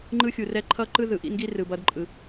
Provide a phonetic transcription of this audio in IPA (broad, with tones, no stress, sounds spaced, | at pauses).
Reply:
ŋ͡ǃ ɯ˦ xʲ u˨ r ɛ˦ ǃʰ ʌ˦ ǃ ɯ˦ ð ɯ˨ ʔ ḭ˦ n ɡ i˦ r ɯ˨ b ʌ˧ d ǃʼ ɯ˨